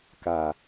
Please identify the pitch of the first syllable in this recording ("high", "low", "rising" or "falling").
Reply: low